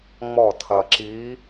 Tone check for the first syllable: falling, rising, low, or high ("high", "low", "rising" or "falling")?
falling